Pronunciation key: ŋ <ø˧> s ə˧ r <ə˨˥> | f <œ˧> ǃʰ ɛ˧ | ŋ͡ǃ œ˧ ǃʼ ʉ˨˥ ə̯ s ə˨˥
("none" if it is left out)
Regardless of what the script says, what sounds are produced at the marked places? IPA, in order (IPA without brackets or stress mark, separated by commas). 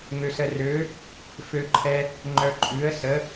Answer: ø˧, ø˨˥, ø˧